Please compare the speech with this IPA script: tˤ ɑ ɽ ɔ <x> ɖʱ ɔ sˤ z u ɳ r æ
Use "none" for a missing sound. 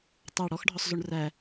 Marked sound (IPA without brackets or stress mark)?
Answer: x